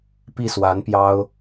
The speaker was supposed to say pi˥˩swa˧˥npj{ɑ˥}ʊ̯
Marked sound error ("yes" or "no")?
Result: no